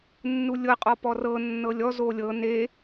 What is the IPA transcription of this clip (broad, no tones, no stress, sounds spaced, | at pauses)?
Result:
nː u lʲ ɤ qʼ ɔ p ɔ r ɤ nː ɤ lʲ ɔ z o lʲ ɤ n e